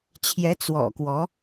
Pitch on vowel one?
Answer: rising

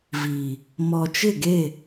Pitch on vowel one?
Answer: low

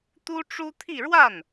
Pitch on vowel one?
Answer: high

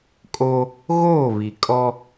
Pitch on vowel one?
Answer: high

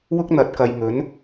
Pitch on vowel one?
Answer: high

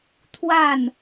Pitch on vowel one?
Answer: falling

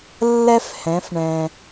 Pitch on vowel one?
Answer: high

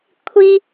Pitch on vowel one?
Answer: high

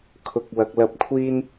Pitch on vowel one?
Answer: low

